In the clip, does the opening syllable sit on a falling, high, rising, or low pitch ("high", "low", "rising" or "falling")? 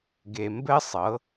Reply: low